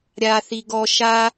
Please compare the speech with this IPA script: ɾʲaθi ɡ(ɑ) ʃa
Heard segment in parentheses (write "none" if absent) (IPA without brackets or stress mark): ɔ